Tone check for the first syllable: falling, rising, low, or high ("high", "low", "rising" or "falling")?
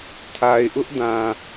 low